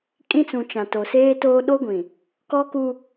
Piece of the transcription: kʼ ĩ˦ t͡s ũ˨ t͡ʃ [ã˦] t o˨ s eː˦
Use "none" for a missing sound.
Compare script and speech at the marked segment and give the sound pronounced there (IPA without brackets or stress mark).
ã˨